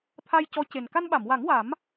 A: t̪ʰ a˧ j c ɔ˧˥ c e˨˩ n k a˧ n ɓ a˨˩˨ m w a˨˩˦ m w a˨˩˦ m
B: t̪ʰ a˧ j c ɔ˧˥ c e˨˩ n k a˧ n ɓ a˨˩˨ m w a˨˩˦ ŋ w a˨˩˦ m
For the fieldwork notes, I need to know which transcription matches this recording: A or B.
B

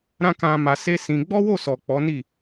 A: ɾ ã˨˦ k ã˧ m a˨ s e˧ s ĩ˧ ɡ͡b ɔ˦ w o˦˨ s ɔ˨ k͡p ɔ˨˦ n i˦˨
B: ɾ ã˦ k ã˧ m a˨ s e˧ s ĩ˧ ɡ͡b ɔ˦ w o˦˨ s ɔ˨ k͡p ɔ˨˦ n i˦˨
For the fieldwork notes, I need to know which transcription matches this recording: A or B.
B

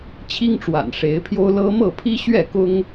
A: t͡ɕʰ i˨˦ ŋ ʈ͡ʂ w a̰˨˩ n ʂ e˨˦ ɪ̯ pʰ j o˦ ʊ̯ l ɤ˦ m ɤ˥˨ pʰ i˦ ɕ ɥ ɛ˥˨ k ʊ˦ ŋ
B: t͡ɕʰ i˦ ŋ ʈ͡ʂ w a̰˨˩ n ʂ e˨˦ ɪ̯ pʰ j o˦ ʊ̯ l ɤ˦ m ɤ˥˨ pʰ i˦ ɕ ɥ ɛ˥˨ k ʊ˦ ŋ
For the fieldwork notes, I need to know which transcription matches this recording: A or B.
B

